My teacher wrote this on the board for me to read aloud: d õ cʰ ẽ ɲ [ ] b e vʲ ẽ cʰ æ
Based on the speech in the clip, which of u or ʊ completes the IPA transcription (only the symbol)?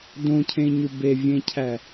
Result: u